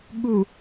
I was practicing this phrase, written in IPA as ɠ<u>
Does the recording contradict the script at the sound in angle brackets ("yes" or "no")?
no